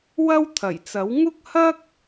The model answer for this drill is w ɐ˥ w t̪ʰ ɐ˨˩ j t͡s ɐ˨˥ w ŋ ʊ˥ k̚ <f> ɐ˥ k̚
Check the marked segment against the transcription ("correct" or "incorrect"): incorrect